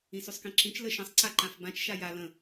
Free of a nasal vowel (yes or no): no